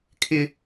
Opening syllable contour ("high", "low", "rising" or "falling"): high